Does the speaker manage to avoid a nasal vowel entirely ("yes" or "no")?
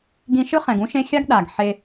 no